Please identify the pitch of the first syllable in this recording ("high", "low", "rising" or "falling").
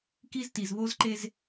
high